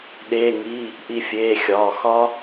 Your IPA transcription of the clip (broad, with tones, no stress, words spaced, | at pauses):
ɗeː˩˧˩ŋiː˩˧˩ | ʔi˧˩fʲeː˩˧˩xʲɒː˩˧˩ xɒ˦˥